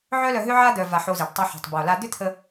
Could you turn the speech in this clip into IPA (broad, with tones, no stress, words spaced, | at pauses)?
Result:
ʕœ˦lœ˧ɦʏ˦ʕa˦ d̪œ˧va˧ħo˧zi˨ɖ tˤʏ˧ ħo̤˨tˤbo˨la˧ d̪ʏ˦t̪ʰə˧